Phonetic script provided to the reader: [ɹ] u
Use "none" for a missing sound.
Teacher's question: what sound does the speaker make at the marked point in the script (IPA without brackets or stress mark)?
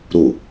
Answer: ɾ